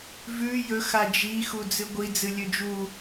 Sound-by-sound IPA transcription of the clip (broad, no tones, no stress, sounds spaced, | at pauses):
v ʉ j ɵ x a d͡ʒ i x u d͡z ɨ ɡʷ i d͡z ɨ lʲ ɵ d͡ʒ u